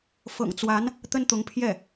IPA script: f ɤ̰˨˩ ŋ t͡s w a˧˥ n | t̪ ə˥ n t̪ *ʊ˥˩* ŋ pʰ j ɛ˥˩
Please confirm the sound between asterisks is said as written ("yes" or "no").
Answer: no